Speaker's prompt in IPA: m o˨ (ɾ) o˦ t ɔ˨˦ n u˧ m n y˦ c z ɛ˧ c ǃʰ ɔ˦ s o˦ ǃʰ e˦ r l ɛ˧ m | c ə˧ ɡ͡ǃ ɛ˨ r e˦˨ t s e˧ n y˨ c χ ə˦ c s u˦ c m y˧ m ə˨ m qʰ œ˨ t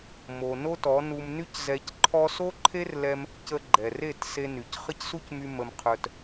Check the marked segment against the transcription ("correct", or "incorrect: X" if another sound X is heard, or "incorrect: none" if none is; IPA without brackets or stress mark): incorrect: n